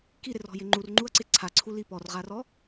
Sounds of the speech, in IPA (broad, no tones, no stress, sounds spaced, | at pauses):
k i ɾ ɪ r ɔ̤ j ɪ ŋ͡ǃ u r ŋ͡ǃ u ɐ̯ ǀ ɪ ǀʰ a ǀʰ u l i p ɔ r ʁ a r ɔ